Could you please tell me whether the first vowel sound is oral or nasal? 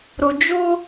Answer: oral